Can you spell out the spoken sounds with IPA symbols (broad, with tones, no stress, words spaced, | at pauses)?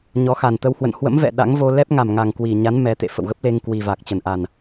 ɲɔ˨˦xa˨˩nt̪ə˧w hwə̰˧˨nhwə̰˧˥mvɛ̰˧˨ ɗa̰˧˥ŋvo˧lɛ˦˥p̚ ŋa˨˩mŋa˨˩ŋ kwi˨˩ɲa˨˦n mɛ˨˦t̪ḛ˧˨ fə̰˧˨wɣə˦˥p̚le˧ŋ kwi˨˩va˨˩k̚t͡ɕə˧˩nʔa˨˩n